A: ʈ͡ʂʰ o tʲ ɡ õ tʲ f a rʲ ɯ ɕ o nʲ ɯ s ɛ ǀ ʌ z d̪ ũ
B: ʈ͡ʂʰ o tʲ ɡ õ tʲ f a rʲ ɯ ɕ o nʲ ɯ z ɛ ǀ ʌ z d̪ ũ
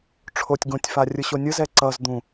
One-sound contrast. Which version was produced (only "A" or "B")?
B